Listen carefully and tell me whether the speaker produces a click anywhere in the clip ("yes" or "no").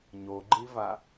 yes